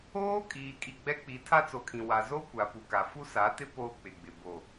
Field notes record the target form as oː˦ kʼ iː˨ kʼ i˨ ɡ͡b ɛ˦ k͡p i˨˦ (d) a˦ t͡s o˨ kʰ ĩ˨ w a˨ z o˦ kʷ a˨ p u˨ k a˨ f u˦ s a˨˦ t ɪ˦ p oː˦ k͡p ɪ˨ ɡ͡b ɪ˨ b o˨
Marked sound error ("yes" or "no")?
yes